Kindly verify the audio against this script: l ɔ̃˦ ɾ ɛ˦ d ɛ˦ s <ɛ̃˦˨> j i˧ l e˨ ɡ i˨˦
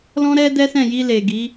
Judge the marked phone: correct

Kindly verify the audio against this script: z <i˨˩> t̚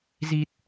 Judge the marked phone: correct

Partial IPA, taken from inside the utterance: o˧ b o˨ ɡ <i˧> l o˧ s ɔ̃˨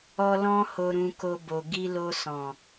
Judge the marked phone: correct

